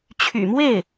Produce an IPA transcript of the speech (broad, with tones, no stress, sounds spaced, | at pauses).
t͡ɕʰ y̰˨˩ m w e˥˩ ɪ̯